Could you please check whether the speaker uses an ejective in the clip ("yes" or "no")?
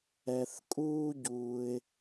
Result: yes